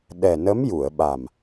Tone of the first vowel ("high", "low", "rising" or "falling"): low